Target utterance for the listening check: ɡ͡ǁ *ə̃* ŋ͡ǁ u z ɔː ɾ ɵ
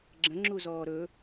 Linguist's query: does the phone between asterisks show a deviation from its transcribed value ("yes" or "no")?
no